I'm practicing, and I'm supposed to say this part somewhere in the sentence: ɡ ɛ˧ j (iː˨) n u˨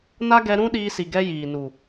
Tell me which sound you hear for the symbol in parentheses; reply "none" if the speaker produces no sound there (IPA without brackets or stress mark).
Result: iː˨